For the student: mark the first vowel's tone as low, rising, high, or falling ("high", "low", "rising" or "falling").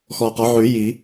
low